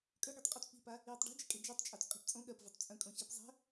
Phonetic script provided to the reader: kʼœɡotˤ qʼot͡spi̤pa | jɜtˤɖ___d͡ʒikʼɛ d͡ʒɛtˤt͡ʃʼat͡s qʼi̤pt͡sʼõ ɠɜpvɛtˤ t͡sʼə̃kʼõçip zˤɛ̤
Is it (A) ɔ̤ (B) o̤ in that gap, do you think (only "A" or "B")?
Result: B